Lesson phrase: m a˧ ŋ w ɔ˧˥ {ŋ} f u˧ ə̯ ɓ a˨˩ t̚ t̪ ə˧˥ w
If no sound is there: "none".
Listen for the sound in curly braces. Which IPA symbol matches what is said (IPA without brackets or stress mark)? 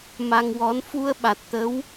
n